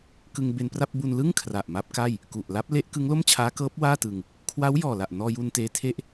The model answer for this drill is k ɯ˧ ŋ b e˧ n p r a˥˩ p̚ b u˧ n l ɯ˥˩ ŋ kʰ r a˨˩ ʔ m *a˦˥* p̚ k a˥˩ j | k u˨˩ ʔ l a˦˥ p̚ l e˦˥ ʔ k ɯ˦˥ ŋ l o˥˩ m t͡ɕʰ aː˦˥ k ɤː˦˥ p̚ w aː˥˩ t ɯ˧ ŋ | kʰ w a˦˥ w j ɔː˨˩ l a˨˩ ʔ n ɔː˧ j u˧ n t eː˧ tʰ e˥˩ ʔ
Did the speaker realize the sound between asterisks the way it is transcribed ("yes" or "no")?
yes